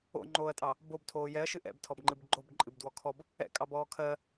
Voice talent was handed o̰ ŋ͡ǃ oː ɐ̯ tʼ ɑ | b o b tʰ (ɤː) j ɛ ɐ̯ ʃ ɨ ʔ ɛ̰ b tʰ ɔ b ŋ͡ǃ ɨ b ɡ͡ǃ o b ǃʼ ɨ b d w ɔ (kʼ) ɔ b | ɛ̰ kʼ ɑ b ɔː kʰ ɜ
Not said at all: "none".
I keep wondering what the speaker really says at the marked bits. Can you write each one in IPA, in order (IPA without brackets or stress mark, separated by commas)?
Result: oː, kʰ